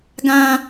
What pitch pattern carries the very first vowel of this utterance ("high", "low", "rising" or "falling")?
low